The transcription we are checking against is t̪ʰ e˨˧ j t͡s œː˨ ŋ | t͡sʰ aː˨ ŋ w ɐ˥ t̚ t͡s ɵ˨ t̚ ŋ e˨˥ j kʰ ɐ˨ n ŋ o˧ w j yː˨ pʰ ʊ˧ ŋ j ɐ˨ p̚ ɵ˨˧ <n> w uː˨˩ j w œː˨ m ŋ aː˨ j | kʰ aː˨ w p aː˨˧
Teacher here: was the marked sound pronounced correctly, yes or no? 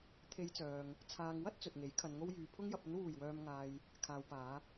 yes